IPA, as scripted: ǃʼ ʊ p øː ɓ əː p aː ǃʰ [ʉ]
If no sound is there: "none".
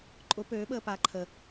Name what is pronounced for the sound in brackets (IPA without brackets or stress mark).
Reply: ə